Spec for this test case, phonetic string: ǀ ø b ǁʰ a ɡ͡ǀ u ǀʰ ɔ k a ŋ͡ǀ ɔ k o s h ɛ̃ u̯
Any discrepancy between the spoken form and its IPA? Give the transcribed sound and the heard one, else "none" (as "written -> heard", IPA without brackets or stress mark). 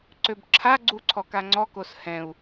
none